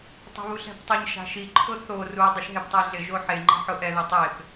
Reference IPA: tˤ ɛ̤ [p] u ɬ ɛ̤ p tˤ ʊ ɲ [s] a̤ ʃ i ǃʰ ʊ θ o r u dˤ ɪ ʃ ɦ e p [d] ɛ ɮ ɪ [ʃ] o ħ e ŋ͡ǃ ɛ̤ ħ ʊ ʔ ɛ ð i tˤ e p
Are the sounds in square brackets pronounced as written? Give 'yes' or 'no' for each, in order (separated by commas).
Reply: no, no, no, no